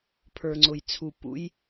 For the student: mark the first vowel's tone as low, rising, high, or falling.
low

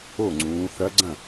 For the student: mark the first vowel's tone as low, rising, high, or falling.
falling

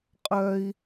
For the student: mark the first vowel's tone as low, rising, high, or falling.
high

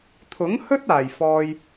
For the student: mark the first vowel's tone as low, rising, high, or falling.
rising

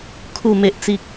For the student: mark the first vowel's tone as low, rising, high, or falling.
low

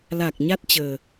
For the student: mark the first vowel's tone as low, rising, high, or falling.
low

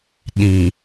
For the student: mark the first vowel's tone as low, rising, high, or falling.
low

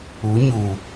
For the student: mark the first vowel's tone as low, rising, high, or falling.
rising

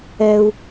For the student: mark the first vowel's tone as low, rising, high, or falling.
low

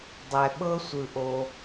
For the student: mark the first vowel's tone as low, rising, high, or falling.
low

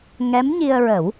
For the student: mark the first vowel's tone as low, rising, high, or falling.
rising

